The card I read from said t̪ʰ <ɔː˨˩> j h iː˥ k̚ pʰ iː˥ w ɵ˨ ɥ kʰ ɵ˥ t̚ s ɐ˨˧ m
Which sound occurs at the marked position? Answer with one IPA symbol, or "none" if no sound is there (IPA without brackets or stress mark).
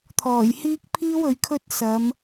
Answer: ɔː˨˩